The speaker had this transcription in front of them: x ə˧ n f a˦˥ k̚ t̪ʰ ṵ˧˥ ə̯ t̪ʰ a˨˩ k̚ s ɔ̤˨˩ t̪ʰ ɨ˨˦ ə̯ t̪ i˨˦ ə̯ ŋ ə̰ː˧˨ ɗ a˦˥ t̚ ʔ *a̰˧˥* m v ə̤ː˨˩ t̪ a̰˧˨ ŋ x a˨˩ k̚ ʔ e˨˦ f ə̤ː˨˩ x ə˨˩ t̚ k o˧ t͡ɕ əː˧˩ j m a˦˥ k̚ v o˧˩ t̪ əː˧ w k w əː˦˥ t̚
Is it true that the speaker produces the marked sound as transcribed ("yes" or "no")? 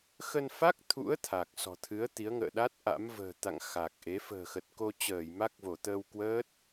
yes